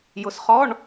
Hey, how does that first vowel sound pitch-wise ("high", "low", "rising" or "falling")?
rising